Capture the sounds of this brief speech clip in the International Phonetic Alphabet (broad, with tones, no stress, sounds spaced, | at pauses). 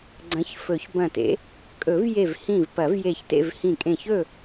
ɡ͡ǀ ɐ̃˨˦ ç f ɵ˨˩˦ ç b ɐ̃˧˩ t ḛ˨˦ | kʼ ɵ˨˩˦ v j e˧˩ v h ĩ˧˩ v p ɐ˨˩˦ v j e˧˩ ç t ḛ˥˨ v h ĩ˧˩ kʼ ẽ˧˩ ç ɵ˥˨